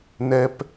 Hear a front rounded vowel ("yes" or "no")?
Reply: no